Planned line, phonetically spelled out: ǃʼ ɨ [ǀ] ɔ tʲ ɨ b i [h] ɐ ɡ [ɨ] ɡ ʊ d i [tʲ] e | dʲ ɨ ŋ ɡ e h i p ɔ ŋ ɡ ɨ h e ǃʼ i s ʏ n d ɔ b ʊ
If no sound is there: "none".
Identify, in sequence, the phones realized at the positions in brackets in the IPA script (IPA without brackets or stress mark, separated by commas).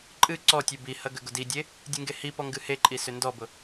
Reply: ǀ, h, ʏ, dʲ